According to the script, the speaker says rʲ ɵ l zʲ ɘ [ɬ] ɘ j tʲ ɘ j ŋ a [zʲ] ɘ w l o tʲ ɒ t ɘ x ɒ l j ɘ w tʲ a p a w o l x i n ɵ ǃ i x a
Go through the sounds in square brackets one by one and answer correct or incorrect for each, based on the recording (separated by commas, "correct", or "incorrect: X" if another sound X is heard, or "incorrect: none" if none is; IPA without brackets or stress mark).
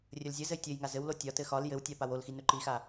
incorrect: z, incorrect: z